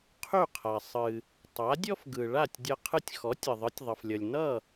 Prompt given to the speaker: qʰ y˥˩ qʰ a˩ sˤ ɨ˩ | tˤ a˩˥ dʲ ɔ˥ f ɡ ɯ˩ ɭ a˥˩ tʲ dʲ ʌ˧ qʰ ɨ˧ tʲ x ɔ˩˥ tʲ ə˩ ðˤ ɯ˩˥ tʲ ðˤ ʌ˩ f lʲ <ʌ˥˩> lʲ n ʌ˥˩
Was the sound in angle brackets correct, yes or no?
no